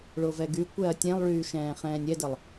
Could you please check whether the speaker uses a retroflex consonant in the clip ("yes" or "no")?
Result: yes